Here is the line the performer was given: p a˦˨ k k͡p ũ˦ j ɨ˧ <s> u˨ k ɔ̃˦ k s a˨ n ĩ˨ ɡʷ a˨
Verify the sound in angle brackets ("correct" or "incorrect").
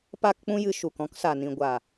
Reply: incorrect